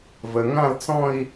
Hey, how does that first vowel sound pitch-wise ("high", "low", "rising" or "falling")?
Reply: low